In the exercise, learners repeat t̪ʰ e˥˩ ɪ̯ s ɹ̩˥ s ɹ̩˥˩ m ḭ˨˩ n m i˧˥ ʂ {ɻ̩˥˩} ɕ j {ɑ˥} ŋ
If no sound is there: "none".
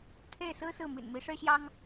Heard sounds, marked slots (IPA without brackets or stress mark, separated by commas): ɻ̩˥, ɑ˥